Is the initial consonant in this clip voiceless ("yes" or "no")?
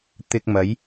yes